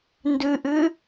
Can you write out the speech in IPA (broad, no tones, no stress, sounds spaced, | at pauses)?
n d ʉ ʔ ʉ